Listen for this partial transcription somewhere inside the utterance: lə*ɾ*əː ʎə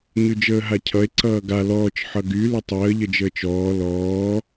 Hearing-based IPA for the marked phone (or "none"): tˤ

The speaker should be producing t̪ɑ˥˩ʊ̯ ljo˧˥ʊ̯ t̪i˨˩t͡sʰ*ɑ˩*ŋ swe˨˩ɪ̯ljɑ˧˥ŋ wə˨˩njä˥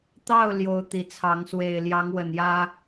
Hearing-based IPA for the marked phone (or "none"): ɑ˧˥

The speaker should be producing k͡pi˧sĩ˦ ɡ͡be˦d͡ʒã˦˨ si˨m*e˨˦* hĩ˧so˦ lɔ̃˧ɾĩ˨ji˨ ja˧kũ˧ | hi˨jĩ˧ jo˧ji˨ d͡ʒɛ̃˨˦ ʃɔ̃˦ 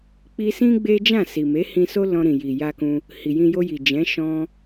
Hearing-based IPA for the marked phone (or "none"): e˨˦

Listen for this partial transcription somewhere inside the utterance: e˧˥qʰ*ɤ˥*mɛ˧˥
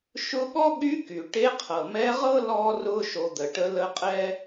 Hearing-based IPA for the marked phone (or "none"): ɤ˩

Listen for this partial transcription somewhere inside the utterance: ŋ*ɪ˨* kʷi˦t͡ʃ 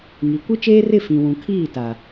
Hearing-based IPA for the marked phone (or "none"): i˨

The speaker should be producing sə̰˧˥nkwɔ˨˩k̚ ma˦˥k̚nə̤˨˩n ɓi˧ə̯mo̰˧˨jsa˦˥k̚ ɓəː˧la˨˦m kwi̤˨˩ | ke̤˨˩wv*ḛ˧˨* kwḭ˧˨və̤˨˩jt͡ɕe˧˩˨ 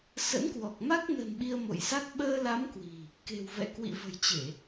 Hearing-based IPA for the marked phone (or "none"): ɛ̰˧˨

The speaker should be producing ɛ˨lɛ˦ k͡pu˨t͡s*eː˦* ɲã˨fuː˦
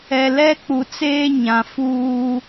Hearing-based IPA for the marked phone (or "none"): eː˦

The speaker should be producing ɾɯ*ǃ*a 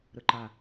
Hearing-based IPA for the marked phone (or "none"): ǃ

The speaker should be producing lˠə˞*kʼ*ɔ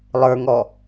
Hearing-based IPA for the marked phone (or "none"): ŋ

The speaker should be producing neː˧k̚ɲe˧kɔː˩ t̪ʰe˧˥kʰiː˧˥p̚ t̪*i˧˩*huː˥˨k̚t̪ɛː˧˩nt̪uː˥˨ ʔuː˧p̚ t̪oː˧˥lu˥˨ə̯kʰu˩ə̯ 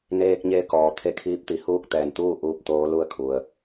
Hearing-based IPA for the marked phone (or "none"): i˩˧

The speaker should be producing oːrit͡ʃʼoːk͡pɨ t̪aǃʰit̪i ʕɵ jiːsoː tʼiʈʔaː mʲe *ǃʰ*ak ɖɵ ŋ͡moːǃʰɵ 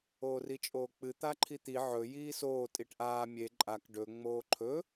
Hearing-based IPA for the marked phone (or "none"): ǃʼ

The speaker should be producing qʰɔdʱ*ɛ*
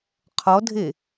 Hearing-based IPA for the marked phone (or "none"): e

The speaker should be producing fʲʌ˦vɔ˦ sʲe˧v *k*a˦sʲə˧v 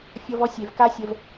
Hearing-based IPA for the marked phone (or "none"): k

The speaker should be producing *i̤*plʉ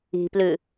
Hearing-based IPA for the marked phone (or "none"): i̤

